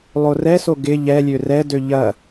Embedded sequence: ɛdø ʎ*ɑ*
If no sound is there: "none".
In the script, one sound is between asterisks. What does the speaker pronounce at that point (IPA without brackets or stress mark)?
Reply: ɐ